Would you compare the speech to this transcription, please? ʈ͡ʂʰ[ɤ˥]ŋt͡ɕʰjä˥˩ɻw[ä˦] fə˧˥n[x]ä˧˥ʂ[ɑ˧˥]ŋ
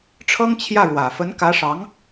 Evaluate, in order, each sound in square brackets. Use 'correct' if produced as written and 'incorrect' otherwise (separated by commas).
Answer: correct, incorrect, incorrect, correct